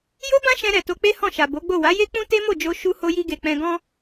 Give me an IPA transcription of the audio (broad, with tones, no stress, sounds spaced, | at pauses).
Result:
j o˦ b ã˦ ʃ ɛ̃˧ ɾ ɛ˨ t o˧ k͡p e˦ h ɔ̃˦˨ ʃ a˨ b o˨˦ ɡ͡b o˦˨ w a˨˦ j e˦ k͡p ũ˦ t e˦ m o˦˨ d͡ʒ o˧ ʃ u˧ h o˧ j i˧ ɡ e˨ k͡p ɛ̃˧ ɡ ɔ̃˦